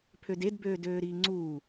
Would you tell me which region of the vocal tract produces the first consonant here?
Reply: lips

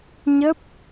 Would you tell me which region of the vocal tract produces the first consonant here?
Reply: palate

